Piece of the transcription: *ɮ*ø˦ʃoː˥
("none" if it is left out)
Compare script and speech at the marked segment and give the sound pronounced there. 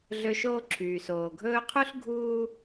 ɮ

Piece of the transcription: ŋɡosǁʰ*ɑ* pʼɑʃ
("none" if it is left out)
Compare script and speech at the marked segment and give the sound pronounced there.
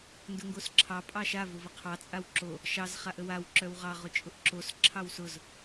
ɑ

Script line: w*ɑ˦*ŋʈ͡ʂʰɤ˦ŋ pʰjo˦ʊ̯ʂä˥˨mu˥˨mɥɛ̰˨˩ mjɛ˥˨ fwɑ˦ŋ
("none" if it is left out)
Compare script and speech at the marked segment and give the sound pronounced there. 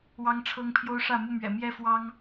ɑ˦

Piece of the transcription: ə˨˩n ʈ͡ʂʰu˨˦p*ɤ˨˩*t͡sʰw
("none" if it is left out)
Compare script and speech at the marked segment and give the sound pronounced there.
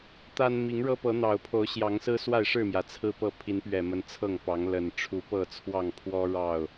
ɤ˥˨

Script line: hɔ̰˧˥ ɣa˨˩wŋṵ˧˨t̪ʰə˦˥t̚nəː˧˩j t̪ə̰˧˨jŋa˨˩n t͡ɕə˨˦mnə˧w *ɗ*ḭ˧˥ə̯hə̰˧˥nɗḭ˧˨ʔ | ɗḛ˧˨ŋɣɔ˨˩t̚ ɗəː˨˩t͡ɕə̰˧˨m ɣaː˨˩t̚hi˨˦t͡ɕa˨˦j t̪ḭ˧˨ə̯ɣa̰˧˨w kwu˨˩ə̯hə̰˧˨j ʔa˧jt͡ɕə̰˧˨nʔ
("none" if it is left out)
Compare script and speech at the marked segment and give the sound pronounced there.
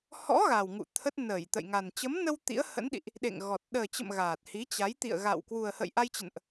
t̪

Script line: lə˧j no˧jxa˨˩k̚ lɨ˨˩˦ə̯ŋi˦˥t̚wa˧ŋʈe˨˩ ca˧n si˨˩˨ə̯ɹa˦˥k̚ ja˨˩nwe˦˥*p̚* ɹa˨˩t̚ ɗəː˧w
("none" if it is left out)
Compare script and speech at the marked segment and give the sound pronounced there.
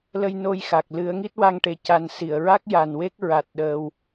k̚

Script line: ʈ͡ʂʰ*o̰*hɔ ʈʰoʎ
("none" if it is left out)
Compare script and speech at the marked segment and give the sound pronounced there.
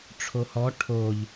o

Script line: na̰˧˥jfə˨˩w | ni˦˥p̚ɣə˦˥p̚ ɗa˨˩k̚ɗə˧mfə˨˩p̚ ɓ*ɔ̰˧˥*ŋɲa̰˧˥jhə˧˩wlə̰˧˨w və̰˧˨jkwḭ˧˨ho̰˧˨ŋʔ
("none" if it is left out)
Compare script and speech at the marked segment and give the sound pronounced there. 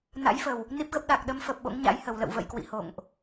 o̰˧˥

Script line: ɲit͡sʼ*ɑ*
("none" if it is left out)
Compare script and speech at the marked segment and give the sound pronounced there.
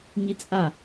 a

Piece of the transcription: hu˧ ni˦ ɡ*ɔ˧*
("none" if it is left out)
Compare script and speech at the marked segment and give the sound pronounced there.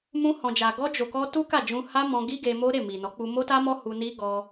ɔ˧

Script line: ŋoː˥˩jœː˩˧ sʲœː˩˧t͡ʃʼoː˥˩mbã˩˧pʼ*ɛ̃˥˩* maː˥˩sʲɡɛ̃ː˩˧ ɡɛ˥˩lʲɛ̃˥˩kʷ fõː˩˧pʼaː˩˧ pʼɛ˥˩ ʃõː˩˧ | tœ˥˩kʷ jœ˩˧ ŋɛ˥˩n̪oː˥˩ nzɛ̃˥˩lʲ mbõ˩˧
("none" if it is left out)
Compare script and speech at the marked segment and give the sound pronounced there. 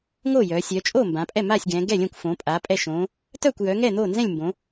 ɛ˥˩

